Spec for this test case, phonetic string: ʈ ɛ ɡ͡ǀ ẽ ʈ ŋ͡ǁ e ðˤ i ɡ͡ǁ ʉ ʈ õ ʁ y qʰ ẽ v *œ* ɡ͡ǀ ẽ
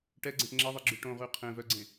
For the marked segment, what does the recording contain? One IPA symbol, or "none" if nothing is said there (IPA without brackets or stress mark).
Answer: œ